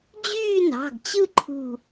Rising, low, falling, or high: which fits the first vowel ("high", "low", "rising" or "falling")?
falling